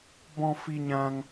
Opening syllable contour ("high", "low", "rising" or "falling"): high